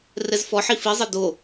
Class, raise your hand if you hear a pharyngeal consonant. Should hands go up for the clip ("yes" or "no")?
yes